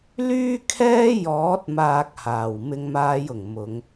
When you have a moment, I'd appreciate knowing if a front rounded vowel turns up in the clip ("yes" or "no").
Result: yes